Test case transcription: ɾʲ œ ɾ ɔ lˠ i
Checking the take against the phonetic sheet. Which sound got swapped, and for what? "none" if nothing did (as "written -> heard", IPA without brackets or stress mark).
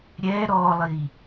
œ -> ɛ